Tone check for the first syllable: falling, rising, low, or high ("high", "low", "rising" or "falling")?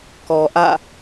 low